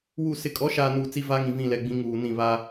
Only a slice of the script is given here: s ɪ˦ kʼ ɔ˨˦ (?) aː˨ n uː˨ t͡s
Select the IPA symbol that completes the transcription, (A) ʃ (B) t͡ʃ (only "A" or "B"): A